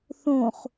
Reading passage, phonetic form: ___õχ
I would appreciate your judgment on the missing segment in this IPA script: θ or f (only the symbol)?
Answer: θ